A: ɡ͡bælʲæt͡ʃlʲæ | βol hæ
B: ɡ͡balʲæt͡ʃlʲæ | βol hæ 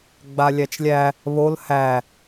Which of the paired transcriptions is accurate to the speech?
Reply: B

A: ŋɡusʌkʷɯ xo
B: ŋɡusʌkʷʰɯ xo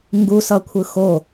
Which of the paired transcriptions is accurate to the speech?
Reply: B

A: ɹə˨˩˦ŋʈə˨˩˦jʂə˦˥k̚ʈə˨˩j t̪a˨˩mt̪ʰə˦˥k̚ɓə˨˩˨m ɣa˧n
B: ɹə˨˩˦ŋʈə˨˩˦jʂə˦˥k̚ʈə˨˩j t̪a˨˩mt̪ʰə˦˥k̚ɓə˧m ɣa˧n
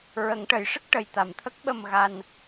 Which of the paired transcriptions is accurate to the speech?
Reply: B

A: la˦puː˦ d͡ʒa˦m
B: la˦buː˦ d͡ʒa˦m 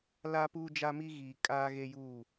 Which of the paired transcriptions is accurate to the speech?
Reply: A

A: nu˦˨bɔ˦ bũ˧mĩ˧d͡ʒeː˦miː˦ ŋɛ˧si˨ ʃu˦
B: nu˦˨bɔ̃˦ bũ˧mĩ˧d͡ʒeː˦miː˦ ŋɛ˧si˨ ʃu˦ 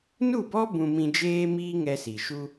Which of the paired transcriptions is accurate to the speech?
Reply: A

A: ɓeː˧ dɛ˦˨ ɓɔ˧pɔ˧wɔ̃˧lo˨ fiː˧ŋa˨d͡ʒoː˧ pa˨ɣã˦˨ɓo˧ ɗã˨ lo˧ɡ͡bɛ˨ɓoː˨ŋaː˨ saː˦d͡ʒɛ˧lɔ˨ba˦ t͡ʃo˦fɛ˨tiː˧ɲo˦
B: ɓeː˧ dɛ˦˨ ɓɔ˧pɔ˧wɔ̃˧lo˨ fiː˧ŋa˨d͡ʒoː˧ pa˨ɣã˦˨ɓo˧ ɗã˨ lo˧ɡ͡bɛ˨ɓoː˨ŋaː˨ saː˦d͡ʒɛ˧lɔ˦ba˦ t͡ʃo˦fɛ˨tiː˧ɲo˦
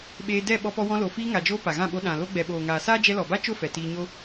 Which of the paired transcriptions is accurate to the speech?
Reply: A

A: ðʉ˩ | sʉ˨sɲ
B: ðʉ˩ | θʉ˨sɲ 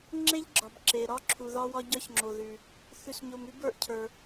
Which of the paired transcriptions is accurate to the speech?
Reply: B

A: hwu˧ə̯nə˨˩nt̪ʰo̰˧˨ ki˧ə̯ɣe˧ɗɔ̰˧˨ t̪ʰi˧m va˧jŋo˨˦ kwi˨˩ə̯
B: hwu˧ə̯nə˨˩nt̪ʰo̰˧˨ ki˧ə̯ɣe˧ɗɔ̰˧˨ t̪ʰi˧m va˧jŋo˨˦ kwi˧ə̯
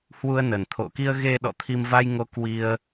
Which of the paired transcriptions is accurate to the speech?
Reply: B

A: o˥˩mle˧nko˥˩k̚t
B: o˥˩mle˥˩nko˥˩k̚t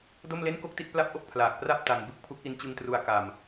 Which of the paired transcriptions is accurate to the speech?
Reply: B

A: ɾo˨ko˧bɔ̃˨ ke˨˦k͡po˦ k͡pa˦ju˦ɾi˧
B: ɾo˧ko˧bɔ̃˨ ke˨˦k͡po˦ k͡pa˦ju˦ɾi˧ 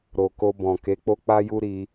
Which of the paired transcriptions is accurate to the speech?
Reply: A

